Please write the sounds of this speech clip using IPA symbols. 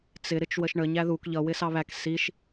t͡sɪ ɾɪt͡ʃwəʃɳə ɲæðuk ʎʌ wɪsɑβæk siʃ

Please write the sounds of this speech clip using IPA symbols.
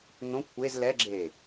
n̪õ kʷʰez lɛɡ͡ǁeː

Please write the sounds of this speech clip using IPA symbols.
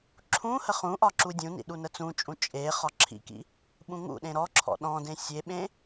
ǁʰũhə χũʔɒ ǁudʲũnḭ ɗunət͡sũt͡ʃʼũ t͡ʃʼe χɒǁʰḭkḭ | ɓũŋṵɗẽ ɾɔǁʰɔ̰ ɗɔ̃dẽ sʲeɓẽ

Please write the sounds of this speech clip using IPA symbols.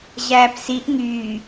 ʑæːpsiʔ ŋyː

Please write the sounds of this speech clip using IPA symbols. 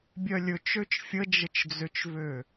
bʲœlʲɵt͡ʃøt͡ʃ fʲəd͡ʒət͡ʃd͡zøt͡ʃvø

